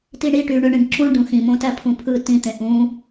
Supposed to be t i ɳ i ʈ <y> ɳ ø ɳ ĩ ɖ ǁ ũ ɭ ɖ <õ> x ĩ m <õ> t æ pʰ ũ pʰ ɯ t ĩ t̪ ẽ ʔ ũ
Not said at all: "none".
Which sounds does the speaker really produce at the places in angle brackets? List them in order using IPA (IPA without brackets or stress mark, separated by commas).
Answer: y, ũ, õ